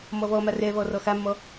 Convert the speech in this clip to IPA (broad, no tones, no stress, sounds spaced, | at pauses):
m ɔ v ɔ m a r ɛ v ɔ r ɔ x a mː ɔ